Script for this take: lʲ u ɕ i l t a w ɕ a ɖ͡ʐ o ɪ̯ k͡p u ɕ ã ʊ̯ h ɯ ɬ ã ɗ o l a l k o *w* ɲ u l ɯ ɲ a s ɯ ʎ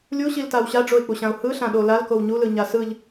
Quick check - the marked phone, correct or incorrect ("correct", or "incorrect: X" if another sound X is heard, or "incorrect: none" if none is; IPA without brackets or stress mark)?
correct